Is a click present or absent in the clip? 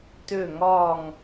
absent